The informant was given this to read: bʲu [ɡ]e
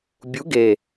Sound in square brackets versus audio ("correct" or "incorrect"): correct